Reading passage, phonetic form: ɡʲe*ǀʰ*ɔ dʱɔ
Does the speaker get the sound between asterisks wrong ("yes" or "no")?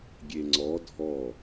yes